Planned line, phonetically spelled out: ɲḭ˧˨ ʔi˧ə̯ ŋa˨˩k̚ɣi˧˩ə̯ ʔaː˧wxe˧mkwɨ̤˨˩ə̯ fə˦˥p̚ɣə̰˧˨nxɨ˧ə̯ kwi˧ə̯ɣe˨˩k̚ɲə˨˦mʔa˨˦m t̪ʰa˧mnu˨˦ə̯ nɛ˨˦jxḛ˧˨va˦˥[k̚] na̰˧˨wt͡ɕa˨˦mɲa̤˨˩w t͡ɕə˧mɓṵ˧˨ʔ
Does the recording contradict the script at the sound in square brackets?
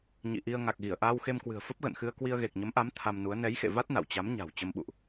yes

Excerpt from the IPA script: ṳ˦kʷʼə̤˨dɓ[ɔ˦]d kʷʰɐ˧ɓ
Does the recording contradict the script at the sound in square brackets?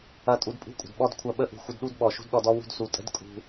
no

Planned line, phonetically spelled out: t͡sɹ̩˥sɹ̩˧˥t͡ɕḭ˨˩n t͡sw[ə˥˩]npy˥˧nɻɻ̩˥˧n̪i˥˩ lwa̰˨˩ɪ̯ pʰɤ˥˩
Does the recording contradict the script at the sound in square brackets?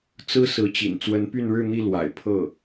yes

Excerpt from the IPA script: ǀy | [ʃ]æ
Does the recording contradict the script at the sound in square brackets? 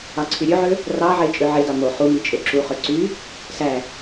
yes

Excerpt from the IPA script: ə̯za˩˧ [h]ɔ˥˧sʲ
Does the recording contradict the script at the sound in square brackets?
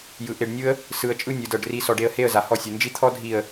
no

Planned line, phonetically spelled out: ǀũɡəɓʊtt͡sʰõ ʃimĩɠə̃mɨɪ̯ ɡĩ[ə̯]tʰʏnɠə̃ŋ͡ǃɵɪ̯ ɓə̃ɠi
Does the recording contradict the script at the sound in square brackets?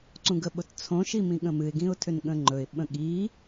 yes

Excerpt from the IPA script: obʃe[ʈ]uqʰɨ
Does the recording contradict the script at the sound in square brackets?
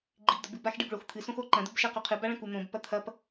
yes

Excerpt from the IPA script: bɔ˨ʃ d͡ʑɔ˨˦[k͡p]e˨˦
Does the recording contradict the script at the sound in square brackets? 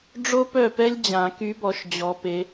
yes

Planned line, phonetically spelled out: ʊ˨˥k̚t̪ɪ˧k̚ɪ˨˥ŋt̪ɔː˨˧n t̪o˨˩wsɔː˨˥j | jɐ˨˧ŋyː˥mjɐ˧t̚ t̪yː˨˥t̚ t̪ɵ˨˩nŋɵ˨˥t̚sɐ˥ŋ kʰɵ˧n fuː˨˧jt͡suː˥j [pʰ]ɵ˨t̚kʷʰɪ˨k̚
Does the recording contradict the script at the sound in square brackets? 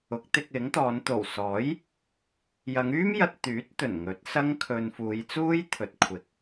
yes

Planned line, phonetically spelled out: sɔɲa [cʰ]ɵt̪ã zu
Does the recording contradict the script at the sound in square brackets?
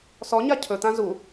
no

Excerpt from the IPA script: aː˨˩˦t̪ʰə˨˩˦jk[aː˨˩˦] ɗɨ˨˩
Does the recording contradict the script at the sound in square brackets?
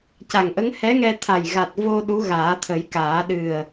no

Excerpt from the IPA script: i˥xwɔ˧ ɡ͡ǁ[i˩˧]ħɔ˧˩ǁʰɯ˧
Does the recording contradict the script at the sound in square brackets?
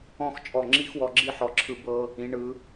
yes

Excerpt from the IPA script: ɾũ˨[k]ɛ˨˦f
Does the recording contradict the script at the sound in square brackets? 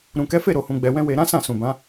no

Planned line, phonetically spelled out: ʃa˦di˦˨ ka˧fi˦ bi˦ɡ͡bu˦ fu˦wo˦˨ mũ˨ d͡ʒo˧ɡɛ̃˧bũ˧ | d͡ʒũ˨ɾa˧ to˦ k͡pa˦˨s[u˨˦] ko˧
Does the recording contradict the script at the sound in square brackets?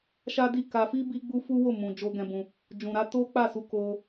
yes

